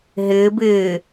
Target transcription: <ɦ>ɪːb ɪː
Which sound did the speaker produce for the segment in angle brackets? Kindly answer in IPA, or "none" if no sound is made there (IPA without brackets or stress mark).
ɦ